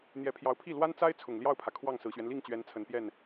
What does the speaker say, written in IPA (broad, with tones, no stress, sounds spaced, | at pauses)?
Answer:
n̪ j ɛ˧˥ pʰ j ɑ˧˥ ʊ̯ pʰ i˥˩ l w a˥ n t͡s a˥ ɪ̯ t͡sʰ ʊ˨˩ ŋ l j ɑ˥˩ ʊ̯ pʰ ä˩ kʰ w ɑ˥˩ ŋ s ɹ̩˨˩ ɕ ɥ ɛ˦ n l i˥˩ ŋ t͡ɕ ɥ ɛ˧˥ n t͡sʰ ə˨˩ n p j ɛ˥˩ n